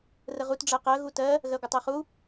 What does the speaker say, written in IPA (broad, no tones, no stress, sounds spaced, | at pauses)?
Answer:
r ə ʁ u t ɖ͡ʐ ɜ q ɜ ɣ u t ɜ | ɣ ɜ ɡʷ ə tˤ ɜ χ u